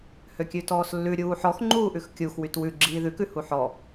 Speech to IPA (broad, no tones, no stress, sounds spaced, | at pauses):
h ø kʲ ʉ t ɔː s lː ʉ ɾʲ uː ħ ɔ x ŋ͡ǃ uː ʔ ʉ x kʲ u x w y t w ʉ ɡ͡ǁ iː ð ʉ k ʉ h u ħ ɔ